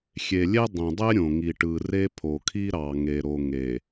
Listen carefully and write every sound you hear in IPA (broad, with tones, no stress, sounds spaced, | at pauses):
xʲ e˨ lʲ e˦ dˤ ĩ˨ dˤ e˦ ɾʲ õ˨ ŋ i˨ ʈ ɯ˨ r e˦ pʰ o˨ kʰ i˦ ɾ ɑ˨ ŋ e˨ ɾ o˨ ŋ e˨